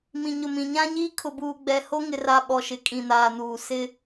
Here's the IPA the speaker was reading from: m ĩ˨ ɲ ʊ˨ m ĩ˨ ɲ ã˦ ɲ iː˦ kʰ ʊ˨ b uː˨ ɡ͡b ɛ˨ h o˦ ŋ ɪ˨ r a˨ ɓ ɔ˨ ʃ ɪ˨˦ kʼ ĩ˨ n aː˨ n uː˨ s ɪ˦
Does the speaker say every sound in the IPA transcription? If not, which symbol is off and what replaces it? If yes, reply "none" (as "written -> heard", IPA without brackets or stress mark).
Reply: none